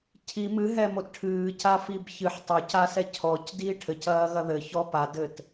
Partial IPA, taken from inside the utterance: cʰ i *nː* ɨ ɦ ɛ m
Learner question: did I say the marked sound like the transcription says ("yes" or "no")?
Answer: no